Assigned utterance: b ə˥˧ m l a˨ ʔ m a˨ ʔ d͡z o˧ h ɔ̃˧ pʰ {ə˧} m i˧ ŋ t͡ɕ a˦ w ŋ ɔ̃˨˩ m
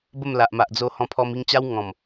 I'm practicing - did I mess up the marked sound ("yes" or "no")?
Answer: yes